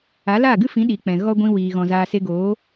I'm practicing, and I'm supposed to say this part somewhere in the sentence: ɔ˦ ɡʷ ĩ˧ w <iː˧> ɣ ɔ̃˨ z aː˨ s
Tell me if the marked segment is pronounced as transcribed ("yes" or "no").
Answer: no